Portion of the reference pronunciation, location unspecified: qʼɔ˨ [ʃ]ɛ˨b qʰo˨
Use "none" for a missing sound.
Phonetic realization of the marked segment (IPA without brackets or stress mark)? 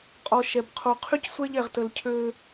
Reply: ʃ